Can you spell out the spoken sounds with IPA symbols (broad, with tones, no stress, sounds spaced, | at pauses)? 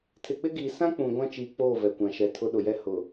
tʰ ɪ˨ k͡p ɪ˦ ɡ iː˨ s ã˦ k͡p ũ˨ ɡʷ ã˦ t͡ʃ iː˨ k͡p oː˦˨ v ɛ˨ kʷ ã˨ ʃ ɛ˨˦ tʰ ʊ˦ ɗ ʊ˨ j ɛ˦ h ʊ˨